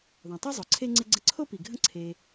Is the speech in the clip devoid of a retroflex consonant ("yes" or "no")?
yes